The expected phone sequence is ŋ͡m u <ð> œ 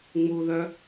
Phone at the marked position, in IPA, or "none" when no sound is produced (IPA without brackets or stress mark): ð